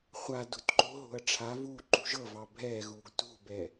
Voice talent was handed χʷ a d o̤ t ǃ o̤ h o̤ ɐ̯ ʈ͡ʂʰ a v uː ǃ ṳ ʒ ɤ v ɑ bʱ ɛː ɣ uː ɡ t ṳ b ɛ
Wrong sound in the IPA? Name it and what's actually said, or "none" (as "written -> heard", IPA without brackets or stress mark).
h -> ɦ